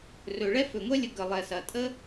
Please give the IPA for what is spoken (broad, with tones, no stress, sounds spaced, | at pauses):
r ɵ˩ ɭ ɛ˥ f ɵ˩ ŋʷ ɛ˥ lʲ ə˧ ɡ ə˩ lˠ ɛ˩ s ɐ˩ tʼ ə˥